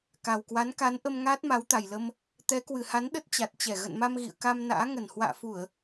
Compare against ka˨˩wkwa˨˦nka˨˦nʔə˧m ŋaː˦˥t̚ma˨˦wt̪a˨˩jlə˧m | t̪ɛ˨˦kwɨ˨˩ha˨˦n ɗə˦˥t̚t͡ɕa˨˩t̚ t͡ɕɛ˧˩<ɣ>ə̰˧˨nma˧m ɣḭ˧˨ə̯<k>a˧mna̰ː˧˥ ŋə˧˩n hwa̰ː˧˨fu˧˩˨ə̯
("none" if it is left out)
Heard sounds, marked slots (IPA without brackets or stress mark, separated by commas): ɣ, k